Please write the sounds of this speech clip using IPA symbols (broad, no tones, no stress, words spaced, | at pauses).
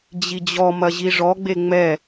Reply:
d͡ʑid͡ʑɔmɐ ʑiʐɔɡ͡be ŋ͡mɛ